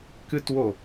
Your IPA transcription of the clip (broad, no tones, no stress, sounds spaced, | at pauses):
k ɨ t w o